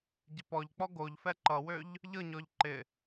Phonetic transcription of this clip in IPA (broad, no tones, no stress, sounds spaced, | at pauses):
ɟ ɪ p ɔ ʎ k͡p ɔ ɡ o ʎ f ɛ ǃ ʌ w ø ʎ | ʎ ɤ ɲ ɔ ʎ ǃ ɪ